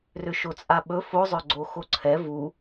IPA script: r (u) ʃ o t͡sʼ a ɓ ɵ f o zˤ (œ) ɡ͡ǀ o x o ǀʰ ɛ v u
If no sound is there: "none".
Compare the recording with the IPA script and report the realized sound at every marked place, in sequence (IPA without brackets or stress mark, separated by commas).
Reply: ʏ, œ